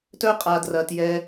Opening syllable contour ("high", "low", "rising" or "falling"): high